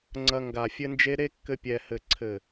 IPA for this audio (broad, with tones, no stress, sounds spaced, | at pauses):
ŋ͡ǀ ɐ˧ ŋ ɡ a˨ fʲ ɘ˧ n d͡ʒ e˧ ɾ e˦ kː ɘ˧ pʲ ɛ˨ h ɘ˨ ǀʰ ɘ˨